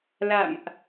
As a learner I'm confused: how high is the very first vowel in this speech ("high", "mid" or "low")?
low